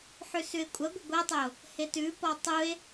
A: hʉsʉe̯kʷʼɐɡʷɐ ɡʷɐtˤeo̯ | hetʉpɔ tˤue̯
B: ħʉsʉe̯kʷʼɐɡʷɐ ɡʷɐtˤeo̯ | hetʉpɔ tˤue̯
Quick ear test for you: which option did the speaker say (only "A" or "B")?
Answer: B